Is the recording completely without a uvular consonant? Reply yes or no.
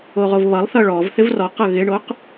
no